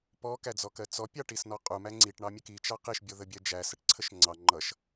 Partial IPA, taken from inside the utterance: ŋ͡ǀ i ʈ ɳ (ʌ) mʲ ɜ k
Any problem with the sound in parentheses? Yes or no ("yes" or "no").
yes